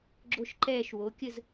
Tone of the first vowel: falling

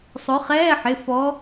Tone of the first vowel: rising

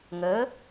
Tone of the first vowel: rising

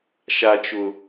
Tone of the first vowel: low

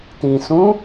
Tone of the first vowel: low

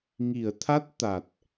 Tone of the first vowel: low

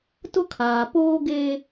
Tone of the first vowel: high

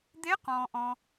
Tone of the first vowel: rising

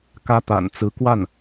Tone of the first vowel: high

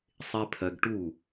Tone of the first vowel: high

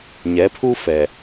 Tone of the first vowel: rising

